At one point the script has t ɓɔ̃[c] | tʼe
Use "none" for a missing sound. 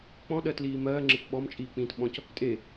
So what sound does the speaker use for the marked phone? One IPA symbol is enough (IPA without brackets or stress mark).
c